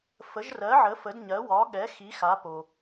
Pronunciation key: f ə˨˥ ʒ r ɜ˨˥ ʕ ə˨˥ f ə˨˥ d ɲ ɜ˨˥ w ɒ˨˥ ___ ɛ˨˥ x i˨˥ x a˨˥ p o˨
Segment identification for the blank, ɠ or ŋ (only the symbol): ɠ